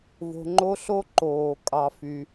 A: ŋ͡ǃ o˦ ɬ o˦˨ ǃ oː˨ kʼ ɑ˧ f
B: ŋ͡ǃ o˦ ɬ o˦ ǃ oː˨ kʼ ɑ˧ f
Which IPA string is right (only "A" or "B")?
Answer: B